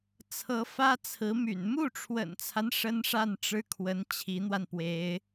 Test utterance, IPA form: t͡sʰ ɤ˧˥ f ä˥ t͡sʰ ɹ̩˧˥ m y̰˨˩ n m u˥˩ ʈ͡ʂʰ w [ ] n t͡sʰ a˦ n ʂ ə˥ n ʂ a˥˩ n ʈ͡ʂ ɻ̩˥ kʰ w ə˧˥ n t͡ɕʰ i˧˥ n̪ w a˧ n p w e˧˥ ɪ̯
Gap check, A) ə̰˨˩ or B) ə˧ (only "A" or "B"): A